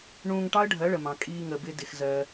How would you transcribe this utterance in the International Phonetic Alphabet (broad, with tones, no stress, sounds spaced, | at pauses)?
ɳ ũː˧ ŋ ʈ ɑ˦ ə̯ ɖʱ ɜ˨˦ ɭ ə˨ m ɑ̃˨ kʼ iː˧ ŋ ə˧ b ɪ˦ d ɪ˧ x z ɜ˧